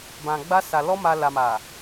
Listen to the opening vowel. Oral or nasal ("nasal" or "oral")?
nasal